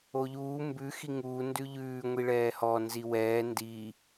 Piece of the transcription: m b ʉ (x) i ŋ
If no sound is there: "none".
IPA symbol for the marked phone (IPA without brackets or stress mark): x